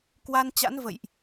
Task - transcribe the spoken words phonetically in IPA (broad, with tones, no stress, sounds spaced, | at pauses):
k w a˧ n t͡ɕ a̰˧˥ n v ə̰˧˨ j ʔ